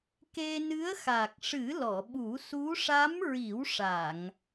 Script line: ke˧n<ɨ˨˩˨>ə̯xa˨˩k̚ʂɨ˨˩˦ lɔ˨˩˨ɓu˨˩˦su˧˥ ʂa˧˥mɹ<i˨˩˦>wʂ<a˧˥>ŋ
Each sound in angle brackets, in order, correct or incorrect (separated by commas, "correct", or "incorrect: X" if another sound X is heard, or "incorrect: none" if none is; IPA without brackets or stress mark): incorrect: ɨ˧˥, correct, incorrect: a˨˩˨